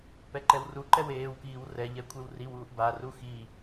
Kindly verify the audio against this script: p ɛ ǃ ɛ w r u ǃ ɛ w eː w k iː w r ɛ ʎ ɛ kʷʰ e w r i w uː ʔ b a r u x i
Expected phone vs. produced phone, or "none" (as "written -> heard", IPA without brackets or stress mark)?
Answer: none